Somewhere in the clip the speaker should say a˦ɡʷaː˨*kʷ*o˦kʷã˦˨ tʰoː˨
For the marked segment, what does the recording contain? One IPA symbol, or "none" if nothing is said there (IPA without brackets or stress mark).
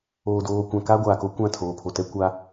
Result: k